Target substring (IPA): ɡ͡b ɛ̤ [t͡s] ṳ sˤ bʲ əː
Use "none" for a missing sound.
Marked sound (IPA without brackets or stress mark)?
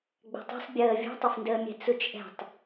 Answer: tˤ